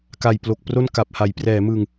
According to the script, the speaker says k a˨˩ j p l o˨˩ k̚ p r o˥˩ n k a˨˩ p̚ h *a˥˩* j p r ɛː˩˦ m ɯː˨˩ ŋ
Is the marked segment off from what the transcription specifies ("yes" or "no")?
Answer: yes